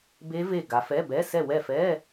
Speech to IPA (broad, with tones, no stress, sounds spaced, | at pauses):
b e˦˥ v e˦˨ ɡ a˨˦ f ɛ˧˥˧ b ɛ˧˥˧ s ɛ˦˨ w ɛ˦˨ f ɛ˧˥˧